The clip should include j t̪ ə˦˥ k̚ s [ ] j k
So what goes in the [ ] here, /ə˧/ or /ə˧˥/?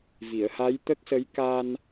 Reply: ə˧˥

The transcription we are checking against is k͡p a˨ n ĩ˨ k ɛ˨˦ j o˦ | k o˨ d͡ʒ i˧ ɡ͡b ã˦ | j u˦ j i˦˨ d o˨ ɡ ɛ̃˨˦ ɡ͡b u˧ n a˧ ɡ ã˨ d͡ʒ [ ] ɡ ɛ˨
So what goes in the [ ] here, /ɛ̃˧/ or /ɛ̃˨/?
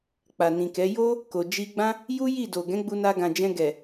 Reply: ɛ̃˧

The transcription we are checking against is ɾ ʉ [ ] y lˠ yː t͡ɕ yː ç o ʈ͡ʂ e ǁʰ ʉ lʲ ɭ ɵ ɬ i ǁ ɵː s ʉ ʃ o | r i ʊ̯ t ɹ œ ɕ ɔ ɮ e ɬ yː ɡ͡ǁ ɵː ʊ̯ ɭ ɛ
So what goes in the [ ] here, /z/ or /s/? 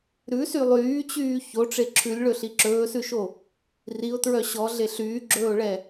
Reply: s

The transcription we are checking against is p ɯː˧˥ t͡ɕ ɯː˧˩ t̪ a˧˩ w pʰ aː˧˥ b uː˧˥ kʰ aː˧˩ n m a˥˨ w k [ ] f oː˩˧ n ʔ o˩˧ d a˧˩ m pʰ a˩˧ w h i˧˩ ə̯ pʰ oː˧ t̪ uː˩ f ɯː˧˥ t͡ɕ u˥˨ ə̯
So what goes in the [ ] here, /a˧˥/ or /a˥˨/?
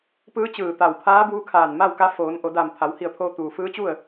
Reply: a˧˥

